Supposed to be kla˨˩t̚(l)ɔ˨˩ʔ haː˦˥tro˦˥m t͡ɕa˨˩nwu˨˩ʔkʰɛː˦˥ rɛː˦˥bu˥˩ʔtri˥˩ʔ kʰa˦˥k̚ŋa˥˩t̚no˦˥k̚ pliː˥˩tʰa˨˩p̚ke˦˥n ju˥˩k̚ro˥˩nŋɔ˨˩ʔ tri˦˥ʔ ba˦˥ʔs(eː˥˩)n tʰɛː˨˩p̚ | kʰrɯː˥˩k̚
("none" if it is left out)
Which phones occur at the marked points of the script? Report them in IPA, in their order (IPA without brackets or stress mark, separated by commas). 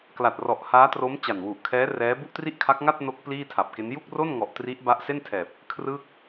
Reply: r, e˥˩